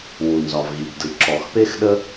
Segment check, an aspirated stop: absent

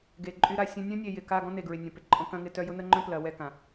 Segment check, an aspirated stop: absent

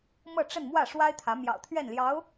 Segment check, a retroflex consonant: present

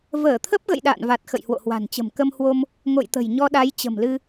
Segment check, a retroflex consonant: absent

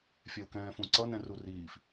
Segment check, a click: present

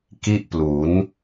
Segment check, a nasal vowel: absent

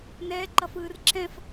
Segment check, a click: present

